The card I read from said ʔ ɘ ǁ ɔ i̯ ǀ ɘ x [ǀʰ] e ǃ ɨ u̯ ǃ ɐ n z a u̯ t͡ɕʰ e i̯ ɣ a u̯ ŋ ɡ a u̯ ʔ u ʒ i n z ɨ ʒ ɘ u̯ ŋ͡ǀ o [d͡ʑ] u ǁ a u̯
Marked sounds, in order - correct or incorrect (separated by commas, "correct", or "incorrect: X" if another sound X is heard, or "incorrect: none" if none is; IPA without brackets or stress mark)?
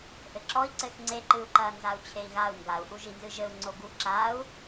incorrect: ŋ͡ǀ, incorrect: ɡ